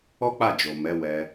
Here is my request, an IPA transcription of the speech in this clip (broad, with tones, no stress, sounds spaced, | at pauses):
ɔ˦ k͡p a˦˨ d͡ʒ o˨ m ɛ˨˦ w ɛ˧